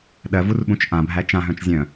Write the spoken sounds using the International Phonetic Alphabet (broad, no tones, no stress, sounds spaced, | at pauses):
ɗ ɜ v u r ɓ ũ t͡ʃ ʔ ã bʱ æ t͡ʃ ã ɦ œ̃ t͡ʃ zʲ œ̃